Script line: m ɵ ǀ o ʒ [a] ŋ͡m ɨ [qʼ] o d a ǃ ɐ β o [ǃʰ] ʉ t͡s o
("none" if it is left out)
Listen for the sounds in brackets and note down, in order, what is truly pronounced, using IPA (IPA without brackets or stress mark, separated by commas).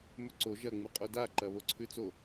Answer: ɐ, qʼ, ǀʰ